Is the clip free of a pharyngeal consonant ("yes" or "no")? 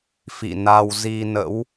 yes